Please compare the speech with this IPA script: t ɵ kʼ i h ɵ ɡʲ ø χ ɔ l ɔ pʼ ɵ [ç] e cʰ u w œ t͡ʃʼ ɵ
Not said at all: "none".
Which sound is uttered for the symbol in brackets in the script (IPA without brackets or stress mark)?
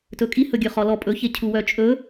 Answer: ç